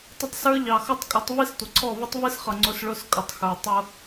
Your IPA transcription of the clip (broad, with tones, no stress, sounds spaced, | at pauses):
tˤ ə˦ tˤ s ə˞˦ ʎ ɑ˨ x ʌ˦ tˤ kʼ ʊ˨˦ tˤ v i˦ s tʷ ə˨ ǀʰ ɔ˦˨ v ʊ˦ tˤ v i˦ s χ ʌ˨ ŋ͡ǀ ʊ˦ s ɭ ʊ˦ s kʼ ʊ˨ tˤ x ə˞˨ tˤ ʊ˦